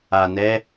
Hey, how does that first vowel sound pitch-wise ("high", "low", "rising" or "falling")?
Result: low